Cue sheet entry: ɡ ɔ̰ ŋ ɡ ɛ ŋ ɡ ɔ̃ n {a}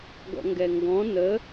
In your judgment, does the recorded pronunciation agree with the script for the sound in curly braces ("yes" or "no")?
no